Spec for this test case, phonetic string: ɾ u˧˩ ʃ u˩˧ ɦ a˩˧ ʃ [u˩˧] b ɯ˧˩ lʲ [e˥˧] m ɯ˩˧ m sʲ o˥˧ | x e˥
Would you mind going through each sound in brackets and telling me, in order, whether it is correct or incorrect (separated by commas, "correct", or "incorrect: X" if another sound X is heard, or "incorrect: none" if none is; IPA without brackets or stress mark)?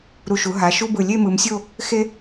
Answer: incorrect: u˥, correct